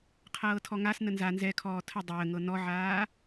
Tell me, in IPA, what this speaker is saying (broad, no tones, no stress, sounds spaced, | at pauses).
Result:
qʰ ɤː tʰ ɔ ŋ a s n ə n z a n z ɛ kʰ ɔː tʰ ə dˤ əː ŋ ɤ n ɔ ʕ aː